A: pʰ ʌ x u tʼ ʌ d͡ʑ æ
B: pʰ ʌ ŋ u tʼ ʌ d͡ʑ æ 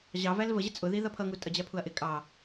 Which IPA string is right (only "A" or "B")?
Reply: B